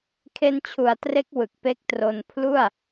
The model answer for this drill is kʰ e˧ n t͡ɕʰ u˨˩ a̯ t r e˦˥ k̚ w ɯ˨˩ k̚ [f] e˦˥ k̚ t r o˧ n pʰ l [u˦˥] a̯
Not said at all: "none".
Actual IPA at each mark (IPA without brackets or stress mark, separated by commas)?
p, u˥˩